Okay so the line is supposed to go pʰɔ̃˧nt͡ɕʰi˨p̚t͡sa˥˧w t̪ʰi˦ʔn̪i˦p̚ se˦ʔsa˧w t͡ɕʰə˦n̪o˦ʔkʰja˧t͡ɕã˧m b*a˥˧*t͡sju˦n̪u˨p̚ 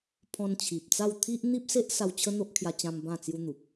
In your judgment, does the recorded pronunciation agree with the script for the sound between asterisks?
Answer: no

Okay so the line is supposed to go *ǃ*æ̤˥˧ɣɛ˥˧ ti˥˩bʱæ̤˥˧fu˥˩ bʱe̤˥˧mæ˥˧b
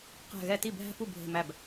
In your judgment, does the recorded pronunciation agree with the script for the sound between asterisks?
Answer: no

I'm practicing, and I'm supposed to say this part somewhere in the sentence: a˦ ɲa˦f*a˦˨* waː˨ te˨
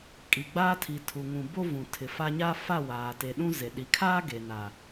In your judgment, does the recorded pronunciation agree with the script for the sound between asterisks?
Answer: yes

